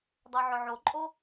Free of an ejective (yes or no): no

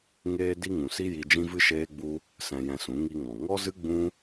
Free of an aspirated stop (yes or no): yes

